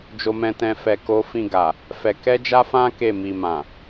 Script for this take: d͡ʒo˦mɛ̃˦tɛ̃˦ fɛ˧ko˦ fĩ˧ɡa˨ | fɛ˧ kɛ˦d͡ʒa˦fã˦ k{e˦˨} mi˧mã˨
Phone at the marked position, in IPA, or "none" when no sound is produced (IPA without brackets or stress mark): e˦˨